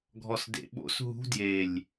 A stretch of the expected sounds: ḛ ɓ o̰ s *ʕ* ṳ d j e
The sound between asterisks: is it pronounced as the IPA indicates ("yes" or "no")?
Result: no